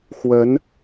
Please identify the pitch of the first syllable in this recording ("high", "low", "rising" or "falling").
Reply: rising